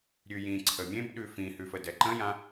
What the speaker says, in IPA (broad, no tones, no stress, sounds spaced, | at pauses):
ɾʲ ʉ j ĩ ǀʰ ə mʲ ẽ b ɗ ʉ f ĩ h ʉ f ə d ɛ ǃ ə̃ j ã